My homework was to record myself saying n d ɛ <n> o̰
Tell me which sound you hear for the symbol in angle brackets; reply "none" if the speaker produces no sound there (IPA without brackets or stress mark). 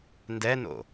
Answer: n